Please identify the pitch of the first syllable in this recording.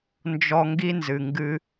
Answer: high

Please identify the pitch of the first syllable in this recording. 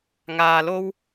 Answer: high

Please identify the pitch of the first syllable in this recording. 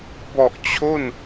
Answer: low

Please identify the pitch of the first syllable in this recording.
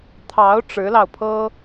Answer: rising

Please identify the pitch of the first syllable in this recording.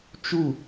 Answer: falling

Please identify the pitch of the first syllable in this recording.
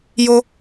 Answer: low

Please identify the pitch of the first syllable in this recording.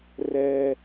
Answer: high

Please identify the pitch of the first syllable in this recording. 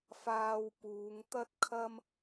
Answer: low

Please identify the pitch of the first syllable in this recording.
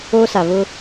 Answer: high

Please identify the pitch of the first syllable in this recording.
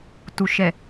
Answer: low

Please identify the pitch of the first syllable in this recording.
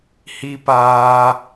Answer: high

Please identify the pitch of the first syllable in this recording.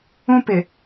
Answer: high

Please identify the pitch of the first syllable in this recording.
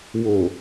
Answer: low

